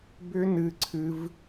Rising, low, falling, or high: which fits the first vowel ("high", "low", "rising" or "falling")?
high